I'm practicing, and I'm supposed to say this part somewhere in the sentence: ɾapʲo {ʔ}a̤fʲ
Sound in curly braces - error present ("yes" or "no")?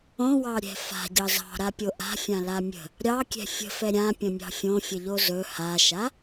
no